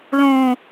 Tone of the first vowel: low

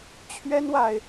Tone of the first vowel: high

